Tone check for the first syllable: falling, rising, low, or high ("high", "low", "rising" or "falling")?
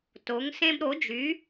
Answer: rising